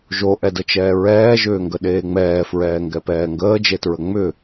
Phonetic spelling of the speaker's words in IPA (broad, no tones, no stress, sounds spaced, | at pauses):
ʒ o ʔ ɛ d ə t͡ʃ ɛː ɹ ɛː ʒ ʏː ŋ ɡ ə ɗ eː ŋ͡m ɛː f ɹ ɛː ŋ ɡ ɛ p ɛː ŋ ɡ əː d͡ʒ e t ɹ ə ŋ͡m ʏ